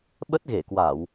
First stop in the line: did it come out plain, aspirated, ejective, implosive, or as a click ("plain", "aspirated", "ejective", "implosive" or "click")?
implosive